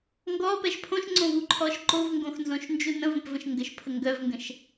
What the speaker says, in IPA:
ŋ ɡ ɔ p ɛ ʃ pʰ õ ʃ ŋ͡ǀ õ v u ǃʰ ɔ ʃ ǃ o v ŋ ɡ õ x n z õ ʃ n d͡ʒ u n ə̃ v ə̃ p v ə̃ ʃ ŋ ɡ ə ʃ pʰ ə ŋ ɡ œ v ŋ ɡ ə̃ ʃ

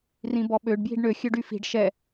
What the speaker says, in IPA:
r ĩ b ɔ ɓ ø ɖ b j i̤ ɖ ɳ ø xʲ ø ɖ y f i̤ ɖ ʃ ɛ

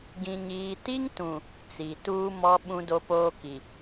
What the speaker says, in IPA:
ɡ ĩ˨ ɲ iː˨ t i˦ ŋ t ũ˨ | t͡s i˨ t uː˦ m ɔ˦ ɓ ũ˦ d o˦ p oː˦ k i˨

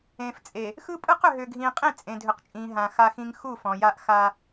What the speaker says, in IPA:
ẽː˨ f t͡sʼ e˨ | x ɯ˦ pʼ ɯ˦ q ʏ˨ ɦ ʏː˨ ɡʱ ĩː˨ qʼ ĩ˦˨ t͡sʼ ẽ˨ dʱ ʏ˨ q t͡ʃʼ ĩː˨ ɦ ã˨ x a˦ x ĩ˦ ŋ x u˦˨ f ɔ̃˨ j a˦ ʔ x a˦

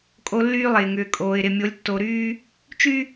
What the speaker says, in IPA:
kʼ o˦ lː yː˦ lˠ ɪː˨ ŋ ʏː˨ kʼ oː˨ ɪ̯ ɾ ɪ˨ mʲ o˨˦ lʲ tː o˨ ɾ yː˦ | t͡ʃ y˦

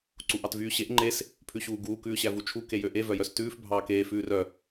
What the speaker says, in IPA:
ǀ u ʔ ɑ t v yː ɕ e ʔ ŋ͡ǃ e s | pʰ ʉ ɕ uː ɡ uː k ʉː ɕ æ v u t͡ʃʰ u k e j ø ʔ e v œ j œ s t ʉː f bʱ ɑː k eː f ʉː r œ

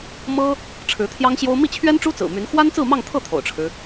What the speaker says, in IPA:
m ɤ˥ | ʈ͡ʂʰ ɻ̩˧˥ t̪ʰ j ɑ˥ ŋ ɕ j o˥ ʊ̯ m i˥˩ t͡ɕʰ ɥ ɛ˥ n ʈ͡ʂ u˥ t͡s ɹ̩˨˩ m y˧˥ n x w a˥ n t͡s ɹ̩˥˧ m ɑ˥˧ ŋ t̪ʰ ɤ˥˩ t̪ʰ o̰˨˩ ʊ̯ ʈ͡ʂʰ ɻ̩˦

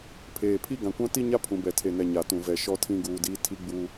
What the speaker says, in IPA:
pʰ eː˨ pʰ i˦ ɡ ã˨ kʷ ã˦ t i˦ ɲ a˦ pʰ ũ˨ b ɛ˨ tʰ e˨ n ɛ˨ ɲ a˨ t ũ˨ v ɛ˨ ʃ ɔ˦ tʰ ĩ˦ ɡ uː˨ d iː˦ tʰ i˦ ɡ͡b uː˦

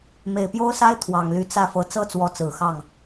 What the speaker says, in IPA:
m e˨˩ ɪ̯ p j o˥ ʊ̯ s a˥ ɪ̯ t̪ʰ w ɑ˨˩ ŋ l y˧˥ t͡s ä˥˩ f ɤ˧˥ t͡s ɤ˥ t͡s w ɔ˧˥ t͡s ɹ̩˨˩ x ɑ˥˩ ŋ

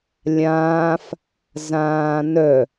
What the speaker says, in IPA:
lʲ ãː f | z ãː n œ

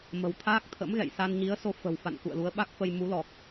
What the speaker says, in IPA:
m ə̤˨˩ w t̪ʰ aː˦˥ k̚ t̪ʰ ə̰˧˥ m ɣ ɛ̰˧˨ j s a˧ n ɲ i˨˦ ə̯ s o˧ f ə̤˨˩ w f a̰˧˨ n k ṵ˧˨ ə̯ l u˨˦ ə̯ ɓ a˦˥ k̚ f ə˧ j m u˨˦ l ɔ˨˩ k̚

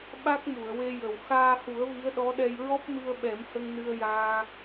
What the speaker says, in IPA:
ɓ a˦˥ k̚ m u˨˩˨ ə̯ w e˧ j ə˨˩ w x aː˧ h u˨˩˦ ə̯ v i˧˥ ə̯ ɗ ɔ˧˥ ɗ ɛ˧ j ɹ ɔ˦˥ p̚ m ɨ˧ ə̯ ɓ ɛ˨˩˦ m h ə˧ ŋ n ɨ˧ ə̯ j aː˧

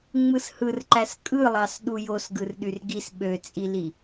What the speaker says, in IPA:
ŋ͡m ɯ s h ɯ r ǃ æ s kʼ ɯ lˠ ɑ s ɗ u j o s ɡ ɯ r ɗ y r ɡ i s ɓ ø t͡sʼ i l i

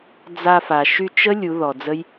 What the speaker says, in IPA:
d͡z a˧ f a˨ ʃ y˧ t͡ʃ ə˦ lʲ u˨˦ ð ɔ˨ d͡z ə˦ j

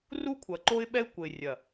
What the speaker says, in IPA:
r u˦ kʷʰ ɐ˨ ǃ o˦ ɪ̯ ɓ ɛ˦ ɪ̯ kʷ ɘ˨ ɪ̯ rʲ ɐ˨

